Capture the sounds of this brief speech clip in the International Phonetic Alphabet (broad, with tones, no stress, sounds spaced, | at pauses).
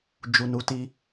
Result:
d͡ʒ u˨ n u˨˦ t i˧